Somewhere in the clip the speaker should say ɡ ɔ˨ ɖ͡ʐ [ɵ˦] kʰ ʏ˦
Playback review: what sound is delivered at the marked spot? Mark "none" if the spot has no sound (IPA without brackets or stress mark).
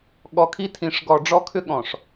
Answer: ɔ˦